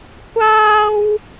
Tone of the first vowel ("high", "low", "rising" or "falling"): high